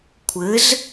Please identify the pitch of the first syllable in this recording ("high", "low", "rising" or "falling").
rising